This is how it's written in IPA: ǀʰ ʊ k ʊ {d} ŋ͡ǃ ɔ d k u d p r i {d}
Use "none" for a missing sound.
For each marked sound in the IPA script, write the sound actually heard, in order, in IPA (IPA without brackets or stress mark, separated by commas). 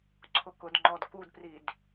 d, d